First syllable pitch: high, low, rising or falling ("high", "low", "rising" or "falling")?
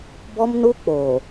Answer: high